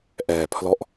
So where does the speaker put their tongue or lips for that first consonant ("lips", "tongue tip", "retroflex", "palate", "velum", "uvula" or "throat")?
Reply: throat